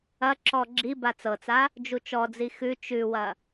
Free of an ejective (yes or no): yes